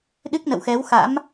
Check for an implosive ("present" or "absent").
present